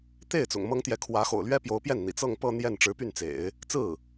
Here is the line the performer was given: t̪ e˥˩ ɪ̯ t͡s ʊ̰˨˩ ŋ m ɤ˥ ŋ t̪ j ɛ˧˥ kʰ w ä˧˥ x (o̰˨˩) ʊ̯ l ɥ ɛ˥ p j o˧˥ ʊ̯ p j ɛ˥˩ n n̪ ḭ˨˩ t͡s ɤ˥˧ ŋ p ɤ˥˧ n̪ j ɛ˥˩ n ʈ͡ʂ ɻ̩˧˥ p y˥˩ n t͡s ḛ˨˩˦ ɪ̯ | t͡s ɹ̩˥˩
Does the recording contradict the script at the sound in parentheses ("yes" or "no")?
no